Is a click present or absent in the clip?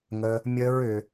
absent